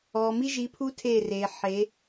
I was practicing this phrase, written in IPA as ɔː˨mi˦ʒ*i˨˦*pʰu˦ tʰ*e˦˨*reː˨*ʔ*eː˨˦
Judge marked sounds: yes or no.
yes, yes, no

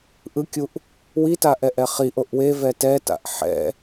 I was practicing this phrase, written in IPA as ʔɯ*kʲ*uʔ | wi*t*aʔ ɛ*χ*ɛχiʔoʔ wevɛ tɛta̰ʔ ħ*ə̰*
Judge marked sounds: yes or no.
yes, yes, no, no

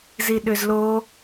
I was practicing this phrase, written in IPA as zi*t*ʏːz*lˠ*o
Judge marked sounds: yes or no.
no, no

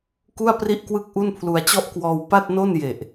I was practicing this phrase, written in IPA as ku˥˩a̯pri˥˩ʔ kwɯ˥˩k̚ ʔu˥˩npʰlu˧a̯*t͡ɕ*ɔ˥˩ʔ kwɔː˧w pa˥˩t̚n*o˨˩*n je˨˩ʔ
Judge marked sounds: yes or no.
yes, no

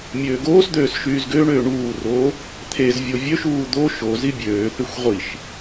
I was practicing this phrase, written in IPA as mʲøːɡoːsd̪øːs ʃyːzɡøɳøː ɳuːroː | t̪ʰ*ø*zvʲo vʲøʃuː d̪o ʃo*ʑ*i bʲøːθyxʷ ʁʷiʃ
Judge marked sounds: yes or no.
no, no

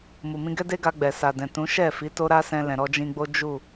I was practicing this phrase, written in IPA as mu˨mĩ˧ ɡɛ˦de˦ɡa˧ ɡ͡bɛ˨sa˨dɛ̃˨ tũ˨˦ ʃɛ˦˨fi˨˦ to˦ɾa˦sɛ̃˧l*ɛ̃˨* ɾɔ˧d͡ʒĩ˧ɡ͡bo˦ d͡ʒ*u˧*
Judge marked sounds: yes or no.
yes, no

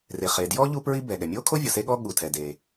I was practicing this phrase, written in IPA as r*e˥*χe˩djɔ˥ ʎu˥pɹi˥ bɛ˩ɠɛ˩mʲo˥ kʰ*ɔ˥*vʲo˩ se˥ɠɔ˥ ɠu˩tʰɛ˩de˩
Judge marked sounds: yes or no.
no, no

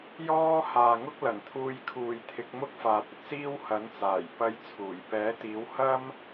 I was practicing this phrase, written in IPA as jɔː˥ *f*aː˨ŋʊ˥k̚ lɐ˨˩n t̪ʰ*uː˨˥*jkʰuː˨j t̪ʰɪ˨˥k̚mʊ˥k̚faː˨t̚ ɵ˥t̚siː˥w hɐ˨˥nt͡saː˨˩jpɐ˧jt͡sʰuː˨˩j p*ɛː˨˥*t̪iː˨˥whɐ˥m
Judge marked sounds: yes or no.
no, no, yes

